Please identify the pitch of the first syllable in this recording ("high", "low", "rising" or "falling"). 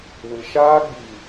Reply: low